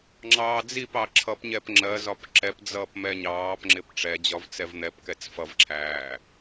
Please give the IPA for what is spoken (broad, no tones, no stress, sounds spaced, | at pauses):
ŋ͡ǁ ɑː d͡z i p ɑ ǁʰ ʌ p ɲ ɛ p ŋ͡ǁ ɜ z ɒ p ǁ ɛ p d͡z ʌː p m ɛ ɲ ɑː p ŋ͡ǁ ɪ p ʈ͡ʂ ɛ d͡ʑ ɒ v t͡s ɛ v n̪ ɛ p k ɛ t͡s f ʌ v ǁʰ æː